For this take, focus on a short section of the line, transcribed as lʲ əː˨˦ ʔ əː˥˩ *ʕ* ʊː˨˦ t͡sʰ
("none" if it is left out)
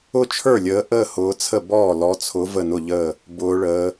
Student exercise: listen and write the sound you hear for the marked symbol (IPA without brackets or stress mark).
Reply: h